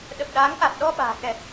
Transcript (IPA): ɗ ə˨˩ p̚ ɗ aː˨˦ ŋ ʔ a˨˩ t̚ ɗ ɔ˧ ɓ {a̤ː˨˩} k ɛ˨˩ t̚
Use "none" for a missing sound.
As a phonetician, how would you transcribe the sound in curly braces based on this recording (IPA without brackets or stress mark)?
a̤ː˨˩